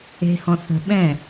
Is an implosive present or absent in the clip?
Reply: present